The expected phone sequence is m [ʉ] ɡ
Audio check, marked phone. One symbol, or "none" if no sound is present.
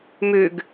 ʉ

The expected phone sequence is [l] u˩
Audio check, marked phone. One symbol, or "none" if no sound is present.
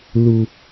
l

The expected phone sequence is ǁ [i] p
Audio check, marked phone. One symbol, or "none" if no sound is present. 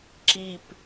i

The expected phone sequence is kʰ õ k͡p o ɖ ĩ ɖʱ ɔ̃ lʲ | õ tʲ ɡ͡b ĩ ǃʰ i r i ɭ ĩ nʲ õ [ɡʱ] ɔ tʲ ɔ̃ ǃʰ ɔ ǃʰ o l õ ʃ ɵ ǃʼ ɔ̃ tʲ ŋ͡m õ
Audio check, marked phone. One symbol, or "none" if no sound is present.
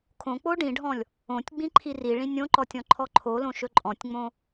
ǃ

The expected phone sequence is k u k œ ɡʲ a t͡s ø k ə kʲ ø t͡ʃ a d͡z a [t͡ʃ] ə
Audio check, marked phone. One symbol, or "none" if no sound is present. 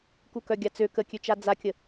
kʲ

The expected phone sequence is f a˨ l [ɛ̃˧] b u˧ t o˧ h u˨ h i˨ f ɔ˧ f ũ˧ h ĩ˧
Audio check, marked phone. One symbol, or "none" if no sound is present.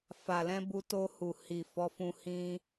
ɛ̃˧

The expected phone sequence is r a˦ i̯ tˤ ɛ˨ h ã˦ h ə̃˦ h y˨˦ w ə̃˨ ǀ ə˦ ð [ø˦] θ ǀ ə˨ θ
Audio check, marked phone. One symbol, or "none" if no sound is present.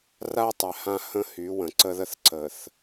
ə˦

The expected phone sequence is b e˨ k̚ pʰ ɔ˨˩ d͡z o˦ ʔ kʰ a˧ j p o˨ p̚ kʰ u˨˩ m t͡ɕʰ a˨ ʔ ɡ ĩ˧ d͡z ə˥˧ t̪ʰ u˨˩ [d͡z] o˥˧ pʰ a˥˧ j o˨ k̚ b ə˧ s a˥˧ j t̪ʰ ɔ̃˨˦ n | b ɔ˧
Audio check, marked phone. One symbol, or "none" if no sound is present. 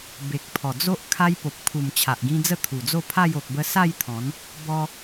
d͡z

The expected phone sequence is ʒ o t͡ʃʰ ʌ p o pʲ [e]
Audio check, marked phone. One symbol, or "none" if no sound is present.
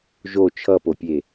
e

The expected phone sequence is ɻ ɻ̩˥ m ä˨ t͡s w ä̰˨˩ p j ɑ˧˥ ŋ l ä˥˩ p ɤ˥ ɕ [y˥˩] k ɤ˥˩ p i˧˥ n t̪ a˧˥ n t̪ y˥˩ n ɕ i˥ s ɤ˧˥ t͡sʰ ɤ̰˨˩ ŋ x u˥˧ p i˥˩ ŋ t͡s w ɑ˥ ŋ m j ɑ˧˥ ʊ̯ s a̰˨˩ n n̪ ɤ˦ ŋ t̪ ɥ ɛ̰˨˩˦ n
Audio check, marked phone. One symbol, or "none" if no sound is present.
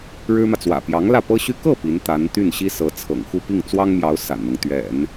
y˥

